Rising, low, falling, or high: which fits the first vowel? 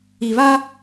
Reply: low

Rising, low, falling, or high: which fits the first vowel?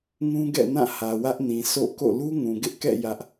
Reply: high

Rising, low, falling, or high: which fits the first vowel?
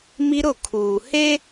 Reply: high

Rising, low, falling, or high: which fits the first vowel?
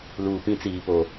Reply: low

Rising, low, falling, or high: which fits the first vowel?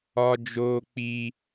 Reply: high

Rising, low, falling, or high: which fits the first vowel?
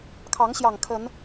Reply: rising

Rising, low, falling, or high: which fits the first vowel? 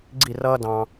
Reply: falling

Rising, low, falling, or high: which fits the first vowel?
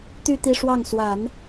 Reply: falling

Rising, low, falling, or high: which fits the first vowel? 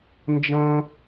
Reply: high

